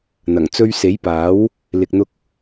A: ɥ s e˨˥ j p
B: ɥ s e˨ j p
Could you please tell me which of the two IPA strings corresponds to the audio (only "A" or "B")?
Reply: A